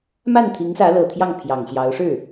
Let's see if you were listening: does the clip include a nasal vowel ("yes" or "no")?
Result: no